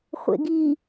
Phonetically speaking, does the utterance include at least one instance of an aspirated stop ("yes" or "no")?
no